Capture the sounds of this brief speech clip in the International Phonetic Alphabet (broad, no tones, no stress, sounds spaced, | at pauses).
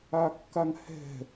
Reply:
a kː a ŋ h ɛ̤